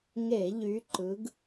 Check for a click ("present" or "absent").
present